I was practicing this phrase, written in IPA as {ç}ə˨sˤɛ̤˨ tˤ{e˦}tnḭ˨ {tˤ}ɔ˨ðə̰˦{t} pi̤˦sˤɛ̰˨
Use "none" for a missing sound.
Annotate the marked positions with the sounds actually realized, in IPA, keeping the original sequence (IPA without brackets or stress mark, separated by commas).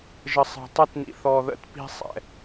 ʒ, ɛ˦, θ, t